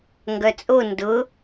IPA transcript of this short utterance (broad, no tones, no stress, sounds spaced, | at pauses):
ŋ ɡ œ t͡sʼ o n d ʊ